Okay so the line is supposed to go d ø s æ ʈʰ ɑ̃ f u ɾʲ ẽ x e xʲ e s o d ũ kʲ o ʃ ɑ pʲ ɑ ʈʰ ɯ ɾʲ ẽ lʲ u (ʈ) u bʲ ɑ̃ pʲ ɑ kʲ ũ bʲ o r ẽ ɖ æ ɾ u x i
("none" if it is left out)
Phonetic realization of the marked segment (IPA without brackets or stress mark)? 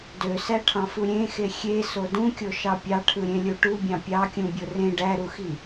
ʈ